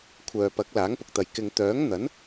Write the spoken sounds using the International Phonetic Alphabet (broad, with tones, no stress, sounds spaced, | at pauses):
kʷʰ œː˨ p ɐ˨˥ k̚ l aː˨˥ ŋ p ʊ˨ k̚ t̪ ɐ˨ j k ɪ˨ ŋ t̪ œː˨˥ ŋ n̪ ɐ˨˥ n